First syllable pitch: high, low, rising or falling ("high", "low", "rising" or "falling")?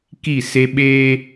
falling